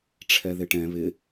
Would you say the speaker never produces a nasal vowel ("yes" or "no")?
no